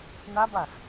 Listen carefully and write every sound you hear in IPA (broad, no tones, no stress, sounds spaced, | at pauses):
n̪ a b a x